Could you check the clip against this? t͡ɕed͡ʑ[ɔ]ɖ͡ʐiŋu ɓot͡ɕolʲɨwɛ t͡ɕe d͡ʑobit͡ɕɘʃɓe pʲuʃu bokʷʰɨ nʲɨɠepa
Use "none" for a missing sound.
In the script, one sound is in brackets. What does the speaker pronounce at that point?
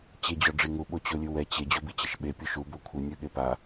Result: ɔ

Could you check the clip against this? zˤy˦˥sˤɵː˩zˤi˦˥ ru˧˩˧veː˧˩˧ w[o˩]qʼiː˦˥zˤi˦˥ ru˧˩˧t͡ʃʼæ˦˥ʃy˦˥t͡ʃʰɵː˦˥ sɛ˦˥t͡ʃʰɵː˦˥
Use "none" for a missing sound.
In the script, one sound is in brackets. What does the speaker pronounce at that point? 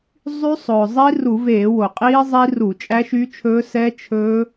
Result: o˩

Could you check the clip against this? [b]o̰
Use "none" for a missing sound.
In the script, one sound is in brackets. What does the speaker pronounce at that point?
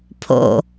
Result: pʰ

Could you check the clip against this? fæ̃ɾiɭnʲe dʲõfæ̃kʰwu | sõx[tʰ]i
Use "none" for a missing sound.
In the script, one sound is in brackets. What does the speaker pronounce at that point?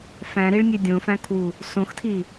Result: tʰ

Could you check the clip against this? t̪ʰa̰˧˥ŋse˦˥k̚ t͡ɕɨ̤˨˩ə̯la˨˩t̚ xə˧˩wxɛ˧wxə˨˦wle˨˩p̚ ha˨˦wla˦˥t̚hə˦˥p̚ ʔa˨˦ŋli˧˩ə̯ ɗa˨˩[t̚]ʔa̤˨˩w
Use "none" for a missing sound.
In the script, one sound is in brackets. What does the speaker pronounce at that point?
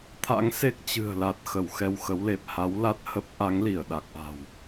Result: k̚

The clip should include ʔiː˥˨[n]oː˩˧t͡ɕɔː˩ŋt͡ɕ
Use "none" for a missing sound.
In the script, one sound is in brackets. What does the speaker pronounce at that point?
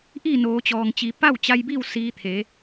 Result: n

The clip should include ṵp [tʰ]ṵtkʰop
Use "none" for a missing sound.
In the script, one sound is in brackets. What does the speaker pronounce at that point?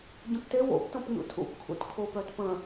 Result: kʰ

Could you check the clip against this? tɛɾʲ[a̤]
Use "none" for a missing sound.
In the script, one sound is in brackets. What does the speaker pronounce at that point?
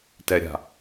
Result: a̤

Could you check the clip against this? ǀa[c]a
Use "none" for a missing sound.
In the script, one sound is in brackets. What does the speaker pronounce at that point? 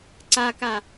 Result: k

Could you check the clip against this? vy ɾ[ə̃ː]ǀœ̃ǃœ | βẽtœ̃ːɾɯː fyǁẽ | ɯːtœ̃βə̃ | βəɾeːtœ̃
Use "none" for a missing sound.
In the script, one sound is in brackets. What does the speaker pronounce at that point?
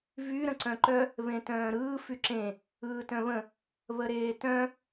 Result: ə̃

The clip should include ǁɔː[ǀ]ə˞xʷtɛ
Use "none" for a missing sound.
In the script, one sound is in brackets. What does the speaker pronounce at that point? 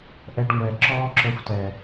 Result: ǁ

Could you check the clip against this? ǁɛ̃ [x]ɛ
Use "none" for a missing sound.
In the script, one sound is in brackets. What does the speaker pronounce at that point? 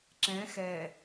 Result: x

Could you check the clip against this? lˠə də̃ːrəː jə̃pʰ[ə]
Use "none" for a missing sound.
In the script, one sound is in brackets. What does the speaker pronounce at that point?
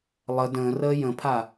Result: a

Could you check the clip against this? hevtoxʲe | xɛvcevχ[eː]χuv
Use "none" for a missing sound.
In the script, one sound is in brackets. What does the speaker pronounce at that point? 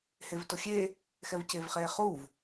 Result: eː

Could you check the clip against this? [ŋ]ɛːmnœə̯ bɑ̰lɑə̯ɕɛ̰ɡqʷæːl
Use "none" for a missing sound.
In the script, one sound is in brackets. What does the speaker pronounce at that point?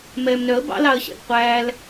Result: m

